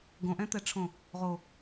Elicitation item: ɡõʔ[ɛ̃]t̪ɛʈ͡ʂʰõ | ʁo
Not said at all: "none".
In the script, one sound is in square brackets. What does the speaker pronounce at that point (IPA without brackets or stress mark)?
ɛ̃